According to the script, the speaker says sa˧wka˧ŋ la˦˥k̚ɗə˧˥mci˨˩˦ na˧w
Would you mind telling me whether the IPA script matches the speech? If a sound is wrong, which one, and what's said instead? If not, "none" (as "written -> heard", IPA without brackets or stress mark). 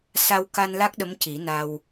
ŋ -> n